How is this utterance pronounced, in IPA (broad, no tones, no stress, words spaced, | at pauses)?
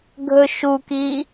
ɡʱɵ ʃukiː